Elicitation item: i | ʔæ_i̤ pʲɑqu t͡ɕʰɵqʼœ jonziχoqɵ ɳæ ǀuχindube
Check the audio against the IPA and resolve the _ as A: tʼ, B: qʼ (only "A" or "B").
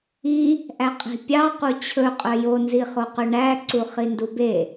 B